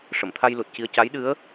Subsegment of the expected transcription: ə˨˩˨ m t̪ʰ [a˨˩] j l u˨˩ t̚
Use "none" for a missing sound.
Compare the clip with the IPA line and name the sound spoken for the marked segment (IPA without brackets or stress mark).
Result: a˧